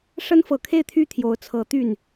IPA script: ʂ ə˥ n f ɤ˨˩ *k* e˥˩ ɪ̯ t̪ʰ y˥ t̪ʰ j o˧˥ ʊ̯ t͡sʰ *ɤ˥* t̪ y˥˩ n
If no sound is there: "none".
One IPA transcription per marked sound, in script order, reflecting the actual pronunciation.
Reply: kʰ, ɤ˧˥

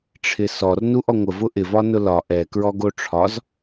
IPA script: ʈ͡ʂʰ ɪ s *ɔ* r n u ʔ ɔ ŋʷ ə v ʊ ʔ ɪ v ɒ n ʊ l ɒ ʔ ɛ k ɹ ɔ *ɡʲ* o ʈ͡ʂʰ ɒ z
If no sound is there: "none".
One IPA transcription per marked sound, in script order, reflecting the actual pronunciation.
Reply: ɔ, ɡ

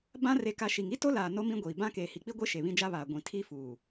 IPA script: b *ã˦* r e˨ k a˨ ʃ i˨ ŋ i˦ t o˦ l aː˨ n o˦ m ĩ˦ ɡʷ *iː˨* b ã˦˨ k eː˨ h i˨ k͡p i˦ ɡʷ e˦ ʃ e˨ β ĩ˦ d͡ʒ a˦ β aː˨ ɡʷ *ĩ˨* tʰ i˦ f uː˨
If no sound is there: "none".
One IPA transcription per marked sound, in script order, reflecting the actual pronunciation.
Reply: ã˦, iː˨, ĩ˨

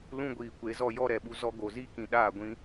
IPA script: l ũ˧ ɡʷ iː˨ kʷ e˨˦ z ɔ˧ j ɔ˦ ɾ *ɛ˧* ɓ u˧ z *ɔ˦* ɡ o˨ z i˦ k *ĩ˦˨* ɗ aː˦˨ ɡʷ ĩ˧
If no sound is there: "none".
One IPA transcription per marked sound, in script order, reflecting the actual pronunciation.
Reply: ɛ˨, ɔ˧, ĩ˨

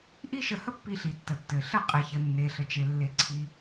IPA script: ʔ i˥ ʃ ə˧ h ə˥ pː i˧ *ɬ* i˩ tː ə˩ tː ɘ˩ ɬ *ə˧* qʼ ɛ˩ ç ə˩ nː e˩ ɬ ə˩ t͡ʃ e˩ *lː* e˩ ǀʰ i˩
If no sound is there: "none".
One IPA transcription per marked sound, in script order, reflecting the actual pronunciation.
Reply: ɬ, ə˧, lː

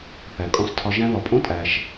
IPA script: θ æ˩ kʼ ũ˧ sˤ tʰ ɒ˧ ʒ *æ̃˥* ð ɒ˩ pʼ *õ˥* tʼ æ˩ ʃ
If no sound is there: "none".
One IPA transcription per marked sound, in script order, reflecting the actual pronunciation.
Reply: æ̃˥, õ˥

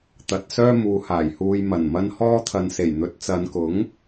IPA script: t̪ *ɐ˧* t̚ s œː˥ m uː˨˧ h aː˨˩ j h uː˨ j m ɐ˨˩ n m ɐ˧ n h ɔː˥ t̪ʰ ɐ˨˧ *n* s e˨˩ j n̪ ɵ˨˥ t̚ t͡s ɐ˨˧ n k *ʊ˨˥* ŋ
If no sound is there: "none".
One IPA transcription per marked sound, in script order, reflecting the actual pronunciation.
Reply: ɐ˨, n, ʊ˨˥

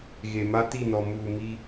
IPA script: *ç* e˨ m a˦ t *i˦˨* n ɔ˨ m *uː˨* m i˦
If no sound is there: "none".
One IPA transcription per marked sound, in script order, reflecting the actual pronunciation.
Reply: ɣ, i˦˨, uː˨

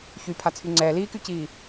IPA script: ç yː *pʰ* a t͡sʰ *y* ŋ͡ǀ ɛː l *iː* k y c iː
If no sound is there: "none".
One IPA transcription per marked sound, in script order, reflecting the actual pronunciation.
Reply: pʰ, y, iː

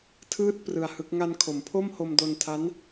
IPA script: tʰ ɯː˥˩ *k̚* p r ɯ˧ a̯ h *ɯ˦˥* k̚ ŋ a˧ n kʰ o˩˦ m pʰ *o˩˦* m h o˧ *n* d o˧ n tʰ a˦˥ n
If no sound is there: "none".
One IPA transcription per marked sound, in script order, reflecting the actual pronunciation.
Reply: t̚, ɯ˦˥, o˥˩, m

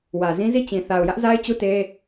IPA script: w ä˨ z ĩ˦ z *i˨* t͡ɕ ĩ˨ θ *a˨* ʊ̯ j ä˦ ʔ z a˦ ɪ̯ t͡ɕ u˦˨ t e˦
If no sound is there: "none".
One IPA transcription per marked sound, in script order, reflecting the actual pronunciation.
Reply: i˦˨, a˨

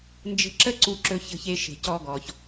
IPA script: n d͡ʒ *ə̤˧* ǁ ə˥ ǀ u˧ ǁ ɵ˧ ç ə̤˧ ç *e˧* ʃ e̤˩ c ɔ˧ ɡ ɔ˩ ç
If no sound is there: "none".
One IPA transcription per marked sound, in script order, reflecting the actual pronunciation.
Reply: ə̤˧, e˧

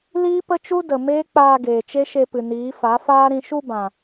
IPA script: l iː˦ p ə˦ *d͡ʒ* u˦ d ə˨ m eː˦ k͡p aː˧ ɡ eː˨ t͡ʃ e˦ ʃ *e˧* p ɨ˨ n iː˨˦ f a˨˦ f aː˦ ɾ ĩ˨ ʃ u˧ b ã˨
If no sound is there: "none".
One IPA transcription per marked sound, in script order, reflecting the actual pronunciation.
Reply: t͡ʃ, e˧

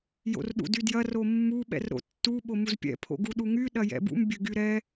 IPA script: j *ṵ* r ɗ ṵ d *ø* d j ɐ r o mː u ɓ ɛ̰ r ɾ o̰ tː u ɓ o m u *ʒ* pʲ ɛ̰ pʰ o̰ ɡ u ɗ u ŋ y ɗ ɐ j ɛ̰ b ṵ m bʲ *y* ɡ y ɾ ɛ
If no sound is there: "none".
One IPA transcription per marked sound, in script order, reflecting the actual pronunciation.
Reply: o̰, y, z, ø

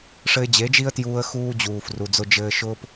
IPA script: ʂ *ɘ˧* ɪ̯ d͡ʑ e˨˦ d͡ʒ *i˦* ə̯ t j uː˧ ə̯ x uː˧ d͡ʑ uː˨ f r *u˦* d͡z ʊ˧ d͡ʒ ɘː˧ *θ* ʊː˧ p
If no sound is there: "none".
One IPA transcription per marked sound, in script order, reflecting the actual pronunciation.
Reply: ɘ˧, i˦, u˨, ʃ

